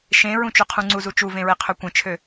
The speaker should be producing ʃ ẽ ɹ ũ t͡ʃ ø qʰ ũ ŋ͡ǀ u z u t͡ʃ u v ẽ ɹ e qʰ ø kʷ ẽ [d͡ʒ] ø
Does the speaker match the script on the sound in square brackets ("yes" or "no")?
no